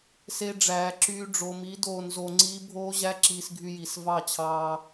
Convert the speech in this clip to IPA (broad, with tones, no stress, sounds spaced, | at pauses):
s e˧ ɖ͡ʐ æː˨ ǁ yː˧ ɖ͡ʐ o˨ m i˨˦ d oː˧ n z o˧ ŋ͡ǀ iː˦ bʱ oː˦ ʑ æ˦ ǁ iː˧ s ɡʱ y˧ j i˨ s v ɑ˦˨ t͡ɕʰ ɑː˧